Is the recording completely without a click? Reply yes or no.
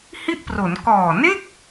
yes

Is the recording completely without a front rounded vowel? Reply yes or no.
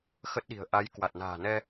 yes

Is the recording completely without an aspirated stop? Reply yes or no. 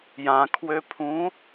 no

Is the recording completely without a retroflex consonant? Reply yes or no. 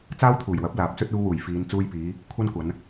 yes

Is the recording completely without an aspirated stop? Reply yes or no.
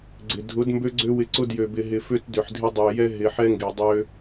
yes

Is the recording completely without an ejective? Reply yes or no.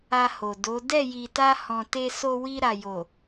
yes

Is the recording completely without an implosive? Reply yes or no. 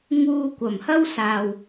yes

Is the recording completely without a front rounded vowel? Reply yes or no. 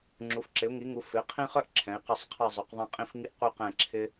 no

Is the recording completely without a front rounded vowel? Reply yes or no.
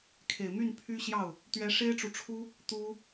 no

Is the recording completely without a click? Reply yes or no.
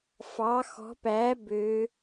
yes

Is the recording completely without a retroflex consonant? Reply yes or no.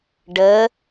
no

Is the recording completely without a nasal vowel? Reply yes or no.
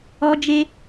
yes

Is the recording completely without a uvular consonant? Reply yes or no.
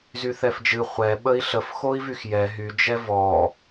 no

